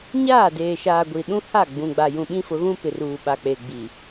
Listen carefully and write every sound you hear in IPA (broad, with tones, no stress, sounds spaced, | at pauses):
ɲ aː˦˨ d eː˨ ʃ aː˨ ɡʷ i˨ ɗ ũ˦ h a˦˨ ɡ͡b ũ˨ ɡ͡b a˨ j ũ˨ ɓ ĩ˦ f ʊ˨˦ ɣ ũ˦ p ɪ˨ r uː˨ ɓ a˨ k͡p e˨ ɡ͡b i˨